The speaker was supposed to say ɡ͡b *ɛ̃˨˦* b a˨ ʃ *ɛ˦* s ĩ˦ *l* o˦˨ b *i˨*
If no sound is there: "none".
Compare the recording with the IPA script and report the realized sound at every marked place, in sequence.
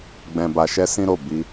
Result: ɛ̃˨, ɛ˧, ɾ, i˧

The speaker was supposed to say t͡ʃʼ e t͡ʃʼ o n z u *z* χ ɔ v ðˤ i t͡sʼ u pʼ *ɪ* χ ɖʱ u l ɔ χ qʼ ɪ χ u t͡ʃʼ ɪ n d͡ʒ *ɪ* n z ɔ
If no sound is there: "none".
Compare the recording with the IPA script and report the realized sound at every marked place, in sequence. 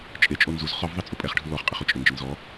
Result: z, ɛ, ɪ

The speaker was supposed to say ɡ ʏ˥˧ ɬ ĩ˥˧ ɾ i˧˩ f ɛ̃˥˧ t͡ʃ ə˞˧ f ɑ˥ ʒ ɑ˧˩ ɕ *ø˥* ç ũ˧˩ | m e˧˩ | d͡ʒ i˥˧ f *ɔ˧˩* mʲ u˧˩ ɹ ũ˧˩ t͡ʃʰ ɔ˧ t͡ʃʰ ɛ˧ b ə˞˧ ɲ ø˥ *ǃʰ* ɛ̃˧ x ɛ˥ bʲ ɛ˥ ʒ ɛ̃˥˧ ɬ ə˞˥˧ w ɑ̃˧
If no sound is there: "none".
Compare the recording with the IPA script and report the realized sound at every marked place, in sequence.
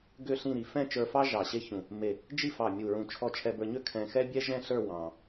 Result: e˥, ɑ˧˩, kʰ

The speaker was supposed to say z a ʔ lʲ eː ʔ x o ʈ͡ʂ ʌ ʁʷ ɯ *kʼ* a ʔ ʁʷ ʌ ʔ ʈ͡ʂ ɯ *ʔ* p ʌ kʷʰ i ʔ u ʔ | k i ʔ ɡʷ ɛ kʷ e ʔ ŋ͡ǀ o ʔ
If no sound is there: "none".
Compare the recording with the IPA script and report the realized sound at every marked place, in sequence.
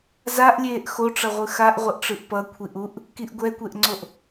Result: x, ʔ

